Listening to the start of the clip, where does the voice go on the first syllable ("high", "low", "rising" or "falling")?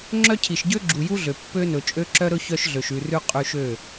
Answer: high